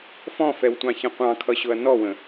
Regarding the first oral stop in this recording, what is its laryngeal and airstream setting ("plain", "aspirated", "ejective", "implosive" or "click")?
plain